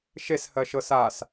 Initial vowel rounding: unrounded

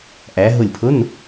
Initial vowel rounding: unrounded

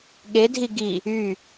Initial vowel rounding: unrounded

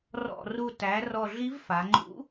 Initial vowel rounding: rounded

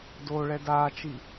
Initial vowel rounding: rounded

